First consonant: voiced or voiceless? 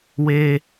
voiced